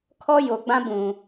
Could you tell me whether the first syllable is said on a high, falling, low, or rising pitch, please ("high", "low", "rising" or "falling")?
high